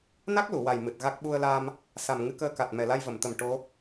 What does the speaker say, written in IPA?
n a˦˥ k̚ l u˨˩˨ w a˨˩ j m ɨ˨˩ t̚ ɣ a˦˥ k̚ ɓ u˧ ə̯ l aː˧ m | s a˨˩ m ŋ ɨ˧ k əː˧ k a˨˩ t̚ m ɛ˨˩ l a˧ j v ə˨˩˨ m t̪ ə˨˩ m ʈ o˧˥

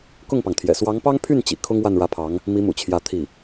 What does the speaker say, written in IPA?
k ʊ˥˩ ŋ p ɑ˩ ŋ t̪ʰ j ɛ̰˨˩ s w ɑ˧˥ ŋ p ɑ˥ ŋ pʰ y˥˩ n t͡ɕ ḭ˨˩ kʰ ʊ˥ ŋ w a˥˩ n ɻ ä˧˥ pʰ ɑ˧˥ ŋ | m i˧˥ m ṵ˨˩ t͡ɕʰ j ä˧˥ t̪ʰ i˥˩

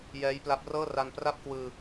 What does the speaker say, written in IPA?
j ɛː˦˥ j p l a˦˥ p̚ r ɤː˥˩ r a˧ n p r a˥˩ p̚ k w ɯː˧

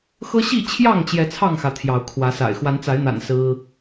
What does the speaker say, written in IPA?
x ɤ˦ ɕ i˥˨ t͡ɕʰ j ɑ˥˨ ŋ t͡ɕ j ɛ˨˦ t͡sʰ ɑ˥˨ ŋ x ä˩ t̪ʰ j ɑ˨˦ ʊ̯ kʰ w ä˨˦ s a̰˨˩ ɪ̯ x w a˨˦ n t͡s a˨˦ ɪ̯ n̪ a̰˨˩ n s ɹ̩˦

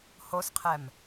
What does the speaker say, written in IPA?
h o s qʰ ɛ m

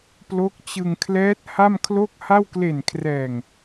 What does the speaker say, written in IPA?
p l o˦˥ k̚ t͡ɕ ɯ˧ ŋ kʰ l ɛː˦˥ t̚ h a˥˩ m kʰ l o˥˩ k̚ h a˥˩ w k l e˨˩ n kʰ r ɛː˨˩ ŋ

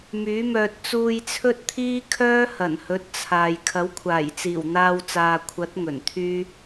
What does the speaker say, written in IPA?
m yː˨˥ m œː˧ t̚ t͡s uː˧ j t͡sʰ ɵ˥ t̚ t̪ʰ iː˥ kʰ œː˥ h ɐ˨˩ n h ɵ˨˥ t̚ t͡sʰ aː˨ j kʰ ɐ˨˥ w kʷʰ aː˨˩ j t͡s iː˨˩ w n̪ aː˧ w t͡s aː˨ kʷʰ ɐ˨˥ t̚ ŋ ɵ˨˩ n t̪ʰ yː˥

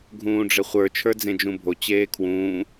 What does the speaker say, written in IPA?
ɡʱ ũː ɖ͡ʐ ɘ χʷ ə˞ t͡ʃʰ ə˞ d͡z ẽ d͡ʒ ũ bʱ o t͡ɕ eː kʰ w ũː

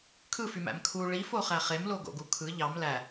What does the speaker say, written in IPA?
kʰ ɯ f y m æ̰ m kʰ u ɭ i f o χ æ χ e m l o ɡ o̰ ɡ u kʰ ɯ ʎ ɑ m l æ

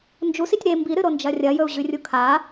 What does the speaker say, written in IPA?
n d͡ʒ u s i tʲ ɾ e m b i ɾ ɨ ɾ o n d͡ʒ ɐ rʲ ɐ j ɵ u̯ ʑ ʉ rʲ u kʰ a

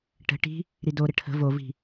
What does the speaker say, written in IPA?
ʈ ə̤ ʈ i̤ | ɾ i d o ɾ ə ʈʰ ə̤ v o v i̤

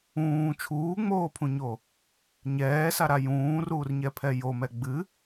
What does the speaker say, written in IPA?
ũː t͡ʃʰ uː ŋ͡m oː pʰ ũ ɲ o | ɲ ɛː s a ɾ a j ũː r uː r ɲ ɛ pʰ ɛ j o m ɛ ɡ͡b ɨ

